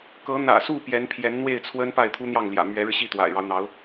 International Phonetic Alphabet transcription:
k ɤ˧˥ n̪ ä̰˨˩ s u˥˩ p j ɛ˧˥ n pʰ j ɛ˧˥ n n̪ w e˥˩ ɪ̯ t͡sʰ w ə˥ n p a˥˩ ɪ̯ t̪ʰ u˥ n̪ j ɑ˥˩ ŋ l j ä̰˨˩ m ɥ ɛ˧˥ ɻ ɻ̩˧ ɕ i˥˩ t̪ w a̰˨˩ ɪ̯ ɻ ɑ˦ ʊ̯ n̪ ɑ˧˥ ʊ̯

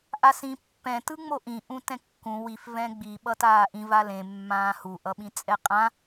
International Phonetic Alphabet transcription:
ʔ a s ĩ pː ɛ̃ t ɯ ŋ͡m o ʔ ĩ ʔ ũ t ɛ̃ kː ũ w i f v ɛ̃ ɡ͡b i ɓ ʌ t aː ʔ ĩ v a l ẽ mː ãː h u ʔ ʌ ɓ ĩ t͡sʼ ɛ qʼ ã

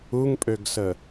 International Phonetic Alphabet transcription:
u ŋ pʼ ø ɡ s ə

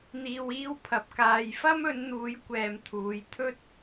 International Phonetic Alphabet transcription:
n̪ iː˧ w iː˥ w pʰ ɐ˨ p̚ k aː˨ j f ɐ˥ m ɵ˨˧ n n̪ uː˨˧ j kʷ ɛː˨ m t̪ʰ uː˨˧ j t̪ʰ ɵ˥ t̚

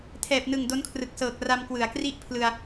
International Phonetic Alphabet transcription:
tʰ ɛː˨˩ p̚ n ɯ˨˩ ŋ d o˦˥ n kʰ r ɯ˨˩ k̚ s ɤː˨˩ k̚ r a˧ m k w ɯ˩˦ a̯ k r i˥˩ ʔ pʰ l ɯ˧ a̯

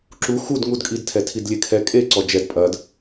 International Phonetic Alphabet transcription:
ǁ u x u d ŋ u d kʼ i d tʰ ɛ tʰ i d lʲ e kʰ ɛ kʼ e ǀ ɔ d͡ʒ ɛ d pʼ ɐ d

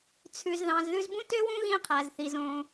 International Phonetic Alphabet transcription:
t͡sʰ ʉ˩ z ð ɑ̃˩ z ð ʉ˧ z b ũ˥ t ø˥ w ũ˥ ɣ ĩ˧ qʰ æ˩ z θ i˩ z õ˩

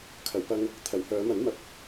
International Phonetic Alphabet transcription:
kʰ ɐ˨˩ w p ɐ˧ ŋ | t̪ʰ ɐ˨˩ w h œː˨˧ m ɐ˨˥ n m ɐ˨˥ p̚

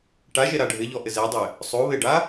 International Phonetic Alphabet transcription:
ʈ a ʒ e ɾ a ɖʱ ɪ ʎ ɔ ʔ ɪ z e dˤ ɪ | sˤ o β ɪ ɖ a

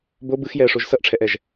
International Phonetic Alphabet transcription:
b o b ɯ x j ɛ ə̯ ʂ o ʒ s ʌ ʔ ʈ͡ʂʰ ɛ ʔ ɛ ʒ

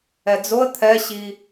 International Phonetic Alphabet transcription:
ɛ d͡z o ə̯ t̪ʰ ɛ ɕ i

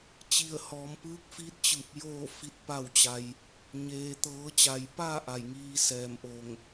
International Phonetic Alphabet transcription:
t͡ɕ i˧˩ ə̯ h ɔː˩˧ m p ɯː˧˥ k̚ f i˧˥ t̚ t͡ɕ ɯː˧˩ p̚ j oː˥˨ f i˧˥ t̚ p a˥˨ w t͡ɕ a˧ j | ɲ eː˩ t̪ ɤː˩˧ t͡ɕ a˩ j p aː˥˨ ʔ a˧˩ j ŋ iː˧ s ɛː˧˩ m ʔ o˧˩ ŋ

